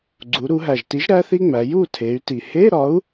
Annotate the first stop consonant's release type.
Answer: click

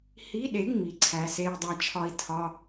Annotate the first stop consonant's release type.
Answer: implosive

